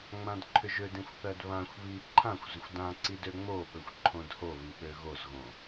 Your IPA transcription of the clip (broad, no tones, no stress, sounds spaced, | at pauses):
ŋ͡m ã d ǃʰ ʏ ʒ ø d ĩ xʷ θ ɜ d β ã xʷ β i ǃʰ ã xʷ z ʏ xʷ d ã ǀ i d ø ŋ͡m o ɓ ɵ xʷ ǃʰ õ d h o β i ɓ ø ɣ o z ɣ õ